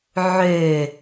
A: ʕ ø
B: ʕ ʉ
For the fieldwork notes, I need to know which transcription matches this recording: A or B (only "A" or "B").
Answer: A